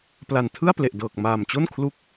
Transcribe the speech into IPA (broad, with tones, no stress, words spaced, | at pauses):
pla˨˩n tʰɯ˥˩a̯ple˨˩ʔdɤː˨˩k̚ maː˨˩mt͡ɕo˥˩n kʰlu˦˥k̚